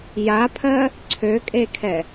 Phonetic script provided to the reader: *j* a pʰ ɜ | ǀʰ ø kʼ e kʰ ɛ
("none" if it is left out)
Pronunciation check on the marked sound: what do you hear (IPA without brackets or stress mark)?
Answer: j